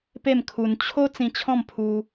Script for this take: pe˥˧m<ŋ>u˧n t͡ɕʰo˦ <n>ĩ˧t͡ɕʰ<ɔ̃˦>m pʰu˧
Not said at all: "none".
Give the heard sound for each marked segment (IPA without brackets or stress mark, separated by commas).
kʰ, t͡s, ɔ̃˥˧